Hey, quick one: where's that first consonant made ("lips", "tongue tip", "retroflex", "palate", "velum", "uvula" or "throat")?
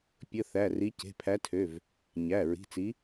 lips